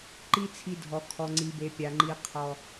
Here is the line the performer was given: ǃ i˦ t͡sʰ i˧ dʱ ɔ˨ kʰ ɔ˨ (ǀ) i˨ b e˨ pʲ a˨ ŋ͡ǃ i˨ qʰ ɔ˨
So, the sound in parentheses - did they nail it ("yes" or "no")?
no